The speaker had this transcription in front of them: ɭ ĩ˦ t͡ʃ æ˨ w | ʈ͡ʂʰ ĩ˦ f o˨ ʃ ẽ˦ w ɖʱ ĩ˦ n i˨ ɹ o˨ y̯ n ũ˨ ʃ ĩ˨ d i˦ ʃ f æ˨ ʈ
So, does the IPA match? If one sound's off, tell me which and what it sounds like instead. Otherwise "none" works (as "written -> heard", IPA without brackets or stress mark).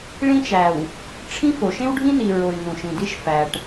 none